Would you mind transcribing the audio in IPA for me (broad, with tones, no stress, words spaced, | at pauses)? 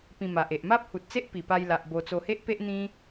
pĩ˧ma˨ʔe˨ʔ ma˦p̚hu˨t̚t͡se˦ʔ pi˨˩pa˧jla˨ʔ bo˧ t͡so˧he˦ʔpe˦ʔ n̪ĩ˦